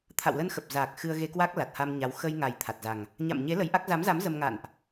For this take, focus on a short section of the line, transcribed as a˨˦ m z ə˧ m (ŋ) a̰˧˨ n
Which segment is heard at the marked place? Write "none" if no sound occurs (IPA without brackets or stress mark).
ŋ